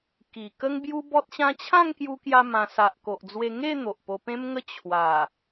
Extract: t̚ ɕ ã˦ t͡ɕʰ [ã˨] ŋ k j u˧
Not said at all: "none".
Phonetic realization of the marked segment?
ã˥˧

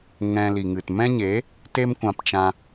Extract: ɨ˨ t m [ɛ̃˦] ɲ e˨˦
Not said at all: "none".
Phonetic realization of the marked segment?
ɛ̃˦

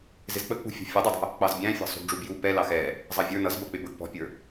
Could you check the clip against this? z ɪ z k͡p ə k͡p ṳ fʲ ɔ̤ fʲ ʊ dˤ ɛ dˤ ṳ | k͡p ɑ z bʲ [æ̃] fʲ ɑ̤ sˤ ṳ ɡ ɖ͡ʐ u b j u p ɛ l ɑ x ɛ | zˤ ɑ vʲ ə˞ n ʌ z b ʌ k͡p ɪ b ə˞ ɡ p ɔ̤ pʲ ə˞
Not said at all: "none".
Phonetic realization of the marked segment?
æ̃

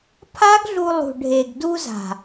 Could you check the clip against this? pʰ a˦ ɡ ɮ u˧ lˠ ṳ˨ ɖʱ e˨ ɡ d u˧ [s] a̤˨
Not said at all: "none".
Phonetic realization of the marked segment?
z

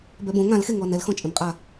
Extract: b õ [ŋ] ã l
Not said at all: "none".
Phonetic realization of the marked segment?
ŋ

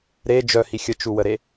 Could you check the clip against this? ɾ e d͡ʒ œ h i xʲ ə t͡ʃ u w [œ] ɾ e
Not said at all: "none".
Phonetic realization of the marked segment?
ə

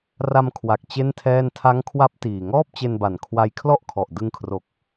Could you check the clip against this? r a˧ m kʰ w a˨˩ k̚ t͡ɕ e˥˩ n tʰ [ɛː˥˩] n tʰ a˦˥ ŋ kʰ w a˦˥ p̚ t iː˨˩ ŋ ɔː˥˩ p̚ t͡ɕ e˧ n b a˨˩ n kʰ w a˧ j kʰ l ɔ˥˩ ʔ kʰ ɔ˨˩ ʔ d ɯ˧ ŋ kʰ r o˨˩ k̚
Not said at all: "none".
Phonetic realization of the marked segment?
ɛː˥˩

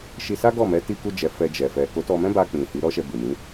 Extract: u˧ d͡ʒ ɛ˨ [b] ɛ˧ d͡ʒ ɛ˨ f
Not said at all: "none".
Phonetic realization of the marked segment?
f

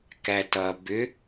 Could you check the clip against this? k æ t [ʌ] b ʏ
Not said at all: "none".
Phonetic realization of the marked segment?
ʌ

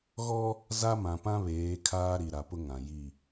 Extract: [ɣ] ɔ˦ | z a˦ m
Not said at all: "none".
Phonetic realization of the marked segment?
ɣ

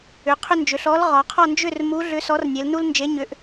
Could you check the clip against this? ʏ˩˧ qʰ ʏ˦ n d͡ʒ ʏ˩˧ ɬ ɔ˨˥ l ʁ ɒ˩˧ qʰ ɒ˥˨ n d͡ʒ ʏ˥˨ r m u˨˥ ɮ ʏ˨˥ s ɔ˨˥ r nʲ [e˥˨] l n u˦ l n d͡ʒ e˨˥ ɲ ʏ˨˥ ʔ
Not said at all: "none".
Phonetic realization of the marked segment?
e˩˧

